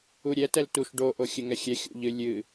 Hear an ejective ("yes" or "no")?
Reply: no